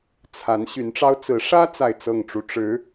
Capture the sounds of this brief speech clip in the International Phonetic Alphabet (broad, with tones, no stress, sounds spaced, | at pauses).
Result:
t͡sʰ a˧˥ n ɕ y˧˥ n ʈ͡ʂ ɑ˥ ʊ̯ t͡s ɹ̩˧˥ ʂ ä˥ t͡s a˥˧ ɪ̯ t͡s ɤ˥˩ ŋ ʈ͡ʂ u˥ ʈ͡ʂ ɻ̩˧˥